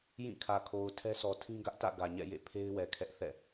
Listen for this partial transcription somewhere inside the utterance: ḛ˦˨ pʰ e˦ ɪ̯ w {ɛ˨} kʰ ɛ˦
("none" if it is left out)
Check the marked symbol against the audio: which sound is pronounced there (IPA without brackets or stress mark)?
ɛ˨